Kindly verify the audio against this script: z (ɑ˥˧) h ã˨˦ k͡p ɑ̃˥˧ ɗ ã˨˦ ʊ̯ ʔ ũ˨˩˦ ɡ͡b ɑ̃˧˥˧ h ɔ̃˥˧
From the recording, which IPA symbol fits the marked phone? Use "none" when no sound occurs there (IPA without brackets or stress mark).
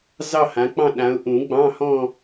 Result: ɑ˥˧